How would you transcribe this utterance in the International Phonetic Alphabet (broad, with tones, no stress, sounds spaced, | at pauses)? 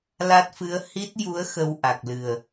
l a˦˥ t̚ f ɨ˧˥ ə̯ h i˦˥ t̚ j u˧˥ ə̯ x ə˧ w ʔ a˨˩ k̚ l ɨ˨˩ ə̯